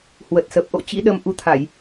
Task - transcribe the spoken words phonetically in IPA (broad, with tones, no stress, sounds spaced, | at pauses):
h w ə˨˩ t̚ s ə˨˩ p̚ ʔ o̰˧˨ t͡ɕ ḭ˧˥ ɗ ə˧ m ʔ u˨˦ t̪ʰ a˧˩˨ j